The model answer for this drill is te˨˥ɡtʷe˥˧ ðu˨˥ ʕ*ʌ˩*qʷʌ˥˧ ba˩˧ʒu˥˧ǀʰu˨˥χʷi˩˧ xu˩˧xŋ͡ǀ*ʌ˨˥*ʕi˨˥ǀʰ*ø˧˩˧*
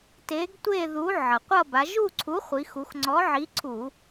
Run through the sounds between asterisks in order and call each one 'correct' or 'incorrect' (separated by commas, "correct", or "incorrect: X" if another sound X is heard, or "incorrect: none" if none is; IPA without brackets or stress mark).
correct, incorrect: ɔ˨˥, incorrect: u˧˩˧